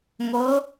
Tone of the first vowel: rising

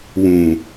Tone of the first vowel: low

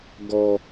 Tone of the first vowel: low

